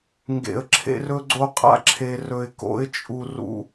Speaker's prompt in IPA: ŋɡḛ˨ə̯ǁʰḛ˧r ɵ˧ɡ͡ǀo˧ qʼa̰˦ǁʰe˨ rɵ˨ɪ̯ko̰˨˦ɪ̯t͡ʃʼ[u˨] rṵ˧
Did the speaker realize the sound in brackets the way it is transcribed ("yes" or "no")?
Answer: yes